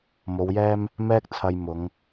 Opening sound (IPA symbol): m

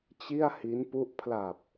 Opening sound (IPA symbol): t͡ɕ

